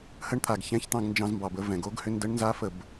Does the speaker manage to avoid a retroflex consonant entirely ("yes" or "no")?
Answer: no